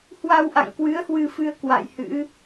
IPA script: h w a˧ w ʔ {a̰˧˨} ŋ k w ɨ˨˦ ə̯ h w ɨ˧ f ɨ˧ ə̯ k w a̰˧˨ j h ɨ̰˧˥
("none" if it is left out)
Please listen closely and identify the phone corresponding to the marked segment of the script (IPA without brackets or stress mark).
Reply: a̰˧˨